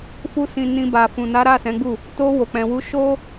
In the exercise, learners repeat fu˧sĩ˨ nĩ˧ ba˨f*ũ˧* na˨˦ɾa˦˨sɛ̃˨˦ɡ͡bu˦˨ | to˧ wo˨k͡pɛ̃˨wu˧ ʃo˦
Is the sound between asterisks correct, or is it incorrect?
incorrect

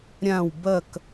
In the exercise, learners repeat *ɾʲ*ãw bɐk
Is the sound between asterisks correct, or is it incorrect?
correct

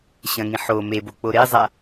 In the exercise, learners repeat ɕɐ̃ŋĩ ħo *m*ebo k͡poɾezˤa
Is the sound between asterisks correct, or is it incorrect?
correct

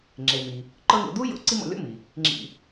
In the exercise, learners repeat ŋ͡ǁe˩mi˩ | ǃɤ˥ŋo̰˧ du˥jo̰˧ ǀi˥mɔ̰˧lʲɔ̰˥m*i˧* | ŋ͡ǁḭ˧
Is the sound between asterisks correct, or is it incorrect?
incorrect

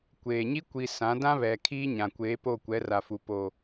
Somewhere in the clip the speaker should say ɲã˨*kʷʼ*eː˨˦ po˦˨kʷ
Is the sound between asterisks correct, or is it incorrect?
incorrect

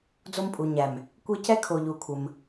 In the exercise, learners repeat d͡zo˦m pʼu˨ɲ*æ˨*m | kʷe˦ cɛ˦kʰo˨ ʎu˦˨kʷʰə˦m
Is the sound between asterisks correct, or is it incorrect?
correct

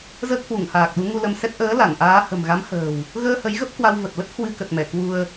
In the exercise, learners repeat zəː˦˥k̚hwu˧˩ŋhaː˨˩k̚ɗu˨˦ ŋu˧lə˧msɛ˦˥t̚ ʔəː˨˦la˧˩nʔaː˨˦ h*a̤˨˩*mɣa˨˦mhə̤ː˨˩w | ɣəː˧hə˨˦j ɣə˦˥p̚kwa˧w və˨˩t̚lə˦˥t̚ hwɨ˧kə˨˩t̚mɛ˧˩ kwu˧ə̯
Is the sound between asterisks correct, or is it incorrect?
incorrect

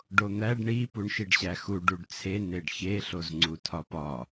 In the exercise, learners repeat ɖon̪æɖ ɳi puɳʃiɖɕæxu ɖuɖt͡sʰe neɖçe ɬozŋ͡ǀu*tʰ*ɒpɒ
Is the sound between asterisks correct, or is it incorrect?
correct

